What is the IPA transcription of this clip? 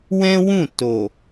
w ɛ̃˦ w ũ˦˨ t o˨

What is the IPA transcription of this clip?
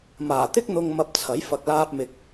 m aː˨˩ t̪ ɪ˥ k̚ n̪ ʊ˧ ŋ m ɐ˧ p̚ t͡sʰ ɐ˨˥ j f ɐ˧ k̚ l aː˥ p̚ m ɪ˧ k̚

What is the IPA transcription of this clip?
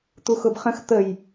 t̪ u x ʊ b χ ə̃ x t̪ ə j

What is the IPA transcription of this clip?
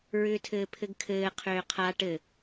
ɹ ʏː tʰ ɘː pʰ ɘ ɡ kʰ ɘː qʰ ʏː qʰ a ʈ ɘ

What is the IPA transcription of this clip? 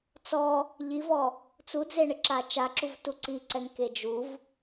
t͡s ɔ | ʎ i v ɔ | t͡s u d͡z e ɳ ɪ ǁ a t͡ʃ a ǁ u v t u ǀ i ǀ ɛ ŋ k e d͡ʒ u v

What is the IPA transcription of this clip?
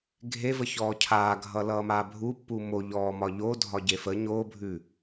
ɡʱ e v ə ç ɔː cʰ aː ɡʱ ʌ l ʌː m aː bʱ u pː u m o ʎ ɔː m ɒ ʎ o dʱ ɒ ɟ e f ə ɲ oː bʱ ʉ

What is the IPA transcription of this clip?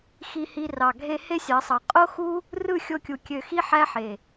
x i˧ h i˧ r ɑ˨ ɡʱ e˧ h e˦ sʲ ɑ˨˦ sˤ ɑ˨ qʼ o˦ x u˦ | r ɯ˦˨ xʲ o˧ kʲ u˨ kʲ ø˨ x i˧ ħ æ˦ ħ e˨

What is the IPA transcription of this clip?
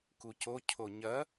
k u c o cʰ o ɲ ɐ

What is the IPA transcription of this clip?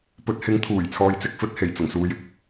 p ɵ˨˥ t̚ h ɪ˨˥ ŋ t̪ʰ uː˨˩ j t͡sʰ ɔː˧ j t͡s ɪ˥ k̚ f ɵ˨˥ t̚ h e˨˩ j t͡s ʊ˨˩ ŋ s uː˨ j ɪ˨ k̚

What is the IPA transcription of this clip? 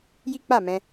j i˦ k͡p a˦˨ m ɛ̃˧

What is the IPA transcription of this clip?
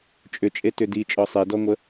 t͡ʃʼ ʏ t͡ʃʼ e t ʏ d i t͡ʃʼ ɔ sˤ e d ɔ ŋʷ ə

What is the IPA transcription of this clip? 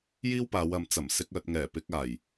j iː˥ w p aː˨˧ w ɐ˨˧ m t͡s ɐ˨˩ m s ɪ˧ k̚ œː˨ t̚ ŋ ɛː˨˩ p ɪ˧ k̚ aː˨˩ j

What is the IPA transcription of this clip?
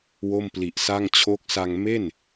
w o˥˩ m p l i˨˩ ʔ s a˥˩ ŋ t͡ɕʰ o˦˥ k̚ s a˧ ŋ m e˥˩ n

